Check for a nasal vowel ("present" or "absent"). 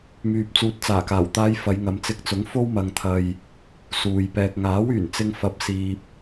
absent